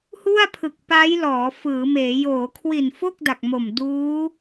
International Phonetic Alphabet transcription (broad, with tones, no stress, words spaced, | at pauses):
hu˥˩a̯pʰɯ˨˩k̚ pa˦˥j lɔː˩˦ fɯː˩˦meː˩˦ joː˩˦kʰwi˨˩nfo˥˩k̚ da˨˩k̚mo˨˩m duː˦˥